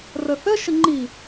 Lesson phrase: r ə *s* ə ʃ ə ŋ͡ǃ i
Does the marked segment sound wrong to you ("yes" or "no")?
yes